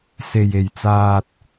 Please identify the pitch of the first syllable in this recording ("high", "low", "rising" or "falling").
low